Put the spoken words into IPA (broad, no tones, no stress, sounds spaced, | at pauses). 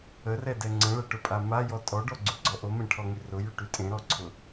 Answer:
ə r ɛ d ɛ ŋ͡ǀ ə̃ ɭ ɛ ʈ ʊ pʼ a m a j ɔ tʼ ɔ ɖ ɔ ɡ͡ǀ ʉ ɡ͡ǀ ɔ ʔ o m ẽ ʈʰ ɔ ŋ y r ʊ j y ʈ y tʼ ẽ ɾ ɔ ǀʰ ʊ